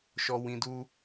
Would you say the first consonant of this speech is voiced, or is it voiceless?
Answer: voiceless